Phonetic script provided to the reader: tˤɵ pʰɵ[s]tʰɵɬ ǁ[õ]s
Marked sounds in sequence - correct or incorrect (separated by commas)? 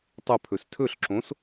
correct, correct